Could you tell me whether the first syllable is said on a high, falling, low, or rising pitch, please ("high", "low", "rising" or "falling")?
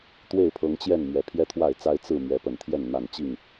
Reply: falling